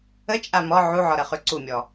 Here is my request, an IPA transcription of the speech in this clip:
ə t͡ʃʼamɔ ʕuʕɔɾə χʉǀumʲɔ

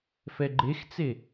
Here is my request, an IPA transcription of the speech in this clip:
fɛɡ͡ǃext͡se

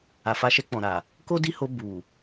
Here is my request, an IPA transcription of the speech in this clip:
a˨fa˨˦ʃɛ˧ k͡pɔ̃˨ɾa˨ | ko˦di˦ho˧ bu˨

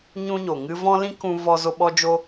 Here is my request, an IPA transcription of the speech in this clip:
ɲũ˦ɲo˨ŋɨ˦ vɔ̃˦ lĩ˦kũ˧ vɔ˧ zo˧ ɓɔ˦d͡ʒo˦

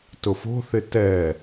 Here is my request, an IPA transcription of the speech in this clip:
tʊfo̤θɪ tɛ

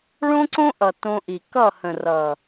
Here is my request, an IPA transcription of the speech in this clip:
ɭõ˦ǀõ˦ʔʌ˨ tõ˧ʔi˨ kʌ˦˨hə̃˨ rʌ˨

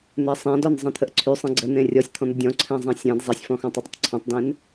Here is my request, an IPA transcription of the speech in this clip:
n̪ɛsˤẽdɔn zˤẽt̪ʰəʔǀʰysˤẽ ɡ͡ǀən̪ẽ rʲɔsʲt̪ʰɔ̃n̪ə dʲɔ̃ǀʰɛ̃ zˤɛ̃sʲɛ̃d zˤesʲfɔ̃xɔ̃ tˤɛdˤətˤǀʰɔ̃tˤdɛ̃n

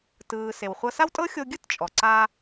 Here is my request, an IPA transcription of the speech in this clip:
tɯː˩ se˩wχʷɤ˧sa˥wtʼɤ˥ xʲo˧ ɡʲɯ˥tt͡ʃʼɔ˩ ǀa˧

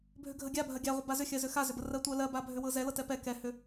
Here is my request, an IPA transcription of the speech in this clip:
bʱʏɡʱəɡʲa bʱɜɡʲaʁʷə bazʏxʲɜzʏ xazʏbə rɜtʷɜlɜ babʱʏwɤzɛ lɤtɛpɛ kɛhʏ

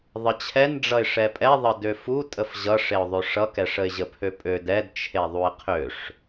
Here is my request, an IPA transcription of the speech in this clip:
ðˤət͡ɕʰɛnɖ͡ʐʌɪ̯ ʂɛpʼɛðˤə døfu tʼəfʑʌʂeʊ̯ ðˤøʂʌkɛʂ əɪ̯ʑəpʰøpʼød ɛdt͡ʃʰe ðˤuɪ̯qʰøʂ

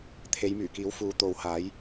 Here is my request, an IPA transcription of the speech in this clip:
t̪ʰe˨˧jmyː˨˩kiː˨˥w fuː˨˧t̪o˨whaː˨˥j

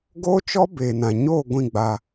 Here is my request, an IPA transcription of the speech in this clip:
ɡoː˦t͡ʃɔ˦ beː˨nã˨ ɲoː˦˨ ɡʷĩ˦˨ɡ͡ba˦

